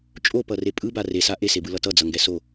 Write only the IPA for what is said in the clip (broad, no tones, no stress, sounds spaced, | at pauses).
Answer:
t͡ʃʼ o p ʌ r e pʼ ɯ b a r e s a ʔ e s e b ɯ l ʌ t ʌ d͡z ʌ ŋ ɡ ɛ s o